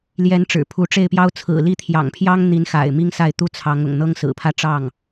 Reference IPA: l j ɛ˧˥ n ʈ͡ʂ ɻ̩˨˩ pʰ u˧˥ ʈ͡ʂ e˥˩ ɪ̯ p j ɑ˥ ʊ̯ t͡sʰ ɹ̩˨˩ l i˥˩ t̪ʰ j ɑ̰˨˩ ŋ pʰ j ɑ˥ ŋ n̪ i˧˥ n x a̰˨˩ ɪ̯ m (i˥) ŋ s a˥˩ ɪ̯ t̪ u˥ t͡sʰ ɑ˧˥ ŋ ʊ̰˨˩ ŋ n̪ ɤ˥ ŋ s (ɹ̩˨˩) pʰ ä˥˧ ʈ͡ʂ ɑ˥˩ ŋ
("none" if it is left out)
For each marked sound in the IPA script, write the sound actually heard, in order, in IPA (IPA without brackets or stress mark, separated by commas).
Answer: i˥, ɹ̩˨˩